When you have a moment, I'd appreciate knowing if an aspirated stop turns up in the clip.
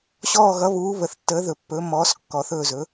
no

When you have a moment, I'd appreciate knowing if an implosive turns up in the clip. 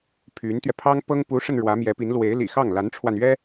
no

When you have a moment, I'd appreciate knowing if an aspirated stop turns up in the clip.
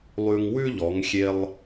no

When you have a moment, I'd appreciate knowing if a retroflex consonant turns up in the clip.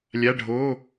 yes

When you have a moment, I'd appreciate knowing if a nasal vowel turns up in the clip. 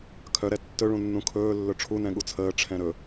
yes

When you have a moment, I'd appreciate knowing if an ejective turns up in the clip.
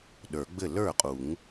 yes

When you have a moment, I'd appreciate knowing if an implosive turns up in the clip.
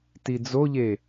no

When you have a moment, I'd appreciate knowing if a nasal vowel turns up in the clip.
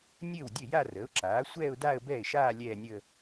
no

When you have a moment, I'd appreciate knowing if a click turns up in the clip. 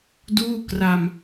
no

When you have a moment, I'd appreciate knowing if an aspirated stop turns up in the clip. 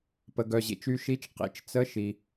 no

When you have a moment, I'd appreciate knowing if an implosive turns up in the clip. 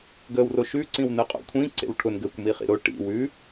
no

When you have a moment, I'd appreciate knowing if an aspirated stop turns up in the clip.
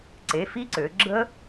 no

